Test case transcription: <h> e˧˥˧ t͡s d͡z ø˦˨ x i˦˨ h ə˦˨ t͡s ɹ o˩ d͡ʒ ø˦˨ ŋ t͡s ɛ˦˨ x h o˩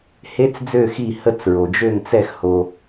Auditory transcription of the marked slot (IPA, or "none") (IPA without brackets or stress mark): h